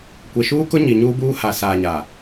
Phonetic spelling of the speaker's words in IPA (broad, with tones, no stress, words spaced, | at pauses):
kʷe˨ʃuː˦kʊ˦ɲi˨ ɲuː˦buː˦ ha˨saː˨ɲa˨